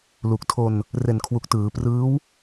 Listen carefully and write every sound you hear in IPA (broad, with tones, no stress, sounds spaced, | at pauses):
l u˨˩ k̚ tʰ o˧ n | r e˨˩ n kʰ w u˨˩ k̚ t ɯː˩˦ p r ɯː˦˥ w